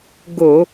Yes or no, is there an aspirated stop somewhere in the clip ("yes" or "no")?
no